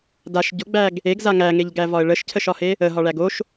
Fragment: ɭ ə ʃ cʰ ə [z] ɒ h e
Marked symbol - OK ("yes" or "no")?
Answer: no